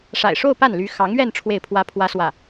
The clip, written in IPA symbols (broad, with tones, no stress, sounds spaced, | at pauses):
ʂ a̰˨˩ ɪ̯ ʂ o˥˧ ʊ̯ p a˥˩ n l y˧˥ x ɑ˧˥ ŋ ɥ ɛ˥˧ n ʈ͡ʂʰ w e˥˩ ɪ̯ pʰ w ä˥ pʰ w ä˥ s w ä˥˩